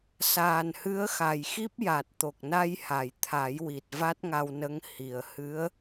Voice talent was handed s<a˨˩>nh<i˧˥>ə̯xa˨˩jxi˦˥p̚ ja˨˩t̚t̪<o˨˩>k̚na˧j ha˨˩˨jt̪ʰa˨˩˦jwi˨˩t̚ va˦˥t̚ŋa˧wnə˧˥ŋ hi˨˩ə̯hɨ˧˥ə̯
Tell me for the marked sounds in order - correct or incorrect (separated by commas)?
incorrect, incorrect, correct